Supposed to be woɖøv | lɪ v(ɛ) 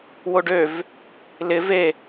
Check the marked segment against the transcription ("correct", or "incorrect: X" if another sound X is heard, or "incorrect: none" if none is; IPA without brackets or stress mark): incorrect: e